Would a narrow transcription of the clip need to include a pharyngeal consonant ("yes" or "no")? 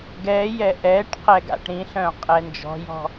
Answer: no